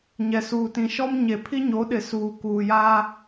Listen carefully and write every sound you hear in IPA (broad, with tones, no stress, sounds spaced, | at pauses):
ɲ ɛ˨ s uː˨ t ĩ˨ ʃ ɔ˦ m ɲ e˨ pʰ i˦ ɲ o˨˦ ɗ ɪ˨ s uː˨ k uː˨ j a˦